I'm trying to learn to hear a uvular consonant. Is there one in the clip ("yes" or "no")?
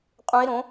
yes